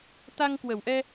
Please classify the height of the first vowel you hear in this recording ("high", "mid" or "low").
low